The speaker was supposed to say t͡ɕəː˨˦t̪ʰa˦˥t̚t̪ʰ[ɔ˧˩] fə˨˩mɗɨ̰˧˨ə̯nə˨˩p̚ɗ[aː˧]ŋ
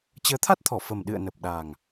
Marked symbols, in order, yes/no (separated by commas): yes, no